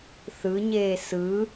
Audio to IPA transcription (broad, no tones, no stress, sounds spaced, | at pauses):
θ ɯ ɲ eː s ɯ